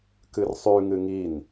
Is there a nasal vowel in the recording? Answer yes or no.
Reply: no